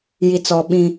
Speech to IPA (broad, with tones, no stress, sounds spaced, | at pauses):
j i˨ t͡s ɔ˨ ɓ ĩ˦